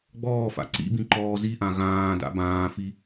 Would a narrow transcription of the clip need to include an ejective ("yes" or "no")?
no